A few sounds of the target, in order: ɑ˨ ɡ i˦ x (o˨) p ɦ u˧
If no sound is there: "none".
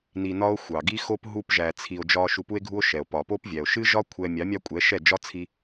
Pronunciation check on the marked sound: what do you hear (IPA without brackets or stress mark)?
o˦